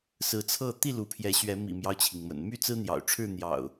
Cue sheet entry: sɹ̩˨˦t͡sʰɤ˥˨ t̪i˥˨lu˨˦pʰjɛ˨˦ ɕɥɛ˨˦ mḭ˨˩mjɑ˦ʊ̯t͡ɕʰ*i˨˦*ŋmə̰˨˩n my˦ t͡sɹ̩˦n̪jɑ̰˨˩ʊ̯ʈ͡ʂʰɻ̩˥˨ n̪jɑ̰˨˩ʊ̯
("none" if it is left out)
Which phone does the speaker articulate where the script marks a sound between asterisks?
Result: i˩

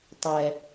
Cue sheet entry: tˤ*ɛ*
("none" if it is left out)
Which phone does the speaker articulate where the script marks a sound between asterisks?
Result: ɛ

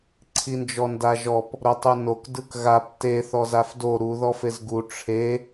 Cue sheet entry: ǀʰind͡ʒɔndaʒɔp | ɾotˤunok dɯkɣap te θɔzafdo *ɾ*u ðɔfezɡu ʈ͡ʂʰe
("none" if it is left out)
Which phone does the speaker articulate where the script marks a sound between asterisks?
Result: ɾ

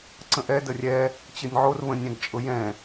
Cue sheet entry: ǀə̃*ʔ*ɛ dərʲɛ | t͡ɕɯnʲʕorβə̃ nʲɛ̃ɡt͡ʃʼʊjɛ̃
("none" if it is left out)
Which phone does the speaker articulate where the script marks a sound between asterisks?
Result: ʔ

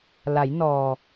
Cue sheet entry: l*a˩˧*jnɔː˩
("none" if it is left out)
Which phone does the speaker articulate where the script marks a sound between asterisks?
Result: a˩˧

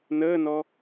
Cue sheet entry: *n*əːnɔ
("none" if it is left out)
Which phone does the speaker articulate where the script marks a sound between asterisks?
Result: n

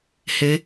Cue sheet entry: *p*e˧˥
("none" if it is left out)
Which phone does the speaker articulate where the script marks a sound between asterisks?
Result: h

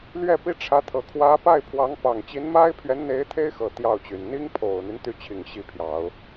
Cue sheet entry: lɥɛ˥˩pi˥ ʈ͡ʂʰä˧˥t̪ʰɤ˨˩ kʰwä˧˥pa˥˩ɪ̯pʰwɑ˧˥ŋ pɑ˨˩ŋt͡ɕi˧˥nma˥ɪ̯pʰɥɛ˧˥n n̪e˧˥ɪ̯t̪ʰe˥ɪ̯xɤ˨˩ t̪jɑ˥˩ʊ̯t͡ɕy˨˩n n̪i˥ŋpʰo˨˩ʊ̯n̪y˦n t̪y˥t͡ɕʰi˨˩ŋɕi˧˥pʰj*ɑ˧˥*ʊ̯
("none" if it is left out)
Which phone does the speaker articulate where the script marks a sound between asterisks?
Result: ɑ˨˩˦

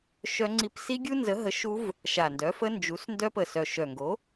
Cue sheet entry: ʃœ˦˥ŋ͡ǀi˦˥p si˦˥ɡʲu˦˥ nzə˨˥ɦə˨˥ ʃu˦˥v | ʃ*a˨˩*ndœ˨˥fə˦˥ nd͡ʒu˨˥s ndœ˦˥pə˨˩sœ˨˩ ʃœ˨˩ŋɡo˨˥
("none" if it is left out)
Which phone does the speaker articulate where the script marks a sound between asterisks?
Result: a˨˩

